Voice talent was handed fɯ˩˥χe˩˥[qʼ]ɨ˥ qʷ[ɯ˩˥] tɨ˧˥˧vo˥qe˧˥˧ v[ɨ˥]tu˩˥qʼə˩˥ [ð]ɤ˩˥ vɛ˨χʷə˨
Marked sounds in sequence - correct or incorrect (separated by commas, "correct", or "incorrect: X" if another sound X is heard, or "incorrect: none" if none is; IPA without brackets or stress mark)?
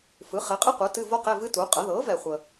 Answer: correct, correct, correct, correct